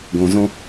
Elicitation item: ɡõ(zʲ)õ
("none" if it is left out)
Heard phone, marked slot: z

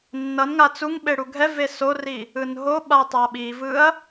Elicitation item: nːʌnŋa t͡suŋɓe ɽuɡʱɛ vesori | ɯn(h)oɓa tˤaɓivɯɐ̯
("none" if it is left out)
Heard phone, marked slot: ɦ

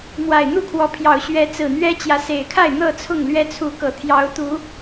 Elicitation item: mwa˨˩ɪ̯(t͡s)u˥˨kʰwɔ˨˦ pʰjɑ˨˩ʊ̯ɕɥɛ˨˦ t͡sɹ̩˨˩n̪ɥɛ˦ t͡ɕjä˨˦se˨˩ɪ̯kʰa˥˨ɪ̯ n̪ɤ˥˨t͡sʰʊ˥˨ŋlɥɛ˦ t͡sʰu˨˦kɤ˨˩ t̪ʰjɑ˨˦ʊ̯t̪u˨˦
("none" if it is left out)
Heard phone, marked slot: n̪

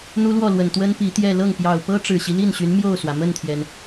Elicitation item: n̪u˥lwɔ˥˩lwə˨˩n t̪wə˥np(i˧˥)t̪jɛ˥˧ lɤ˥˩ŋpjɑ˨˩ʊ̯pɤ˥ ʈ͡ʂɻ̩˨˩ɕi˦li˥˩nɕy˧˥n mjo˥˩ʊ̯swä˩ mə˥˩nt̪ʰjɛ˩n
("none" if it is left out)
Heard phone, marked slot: i˧˥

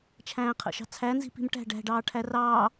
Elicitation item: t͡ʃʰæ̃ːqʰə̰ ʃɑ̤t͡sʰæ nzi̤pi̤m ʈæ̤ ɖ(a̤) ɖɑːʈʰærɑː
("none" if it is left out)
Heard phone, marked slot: æ̤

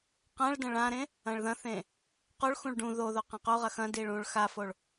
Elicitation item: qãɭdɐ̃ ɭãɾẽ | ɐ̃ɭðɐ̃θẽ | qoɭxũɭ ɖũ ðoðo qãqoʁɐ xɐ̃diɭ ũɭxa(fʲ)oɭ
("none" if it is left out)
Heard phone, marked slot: f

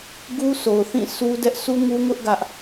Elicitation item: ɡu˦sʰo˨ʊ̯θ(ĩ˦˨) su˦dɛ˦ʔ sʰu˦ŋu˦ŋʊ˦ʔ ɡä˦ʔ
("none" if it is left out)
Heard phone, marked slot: ĩ˦˨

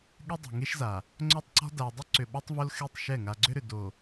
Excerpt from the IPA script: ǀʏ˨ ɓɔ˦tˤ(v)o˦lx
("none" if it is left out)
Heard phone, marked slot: v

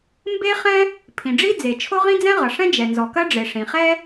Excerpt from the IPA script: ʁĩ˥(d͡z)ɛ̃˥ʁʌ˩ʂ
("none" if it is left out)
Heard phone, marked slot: d͡z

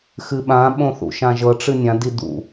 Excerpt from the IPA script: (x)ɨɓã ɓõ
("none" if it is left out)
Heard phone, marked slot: x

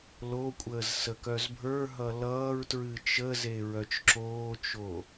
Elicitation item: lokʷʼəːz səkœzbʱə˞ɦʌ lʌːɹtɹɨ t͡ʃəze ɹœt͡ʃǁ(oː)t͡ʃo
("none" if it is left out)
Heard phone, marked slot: oː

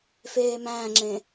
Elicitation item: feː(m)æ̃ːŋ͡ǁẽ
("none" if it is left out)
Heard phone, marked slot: m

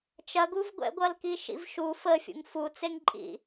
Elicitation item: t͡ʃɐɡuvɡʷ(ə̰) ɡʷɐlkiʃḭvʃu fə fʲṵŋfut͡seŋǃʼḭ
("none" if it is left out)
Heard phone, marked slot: ɛ̰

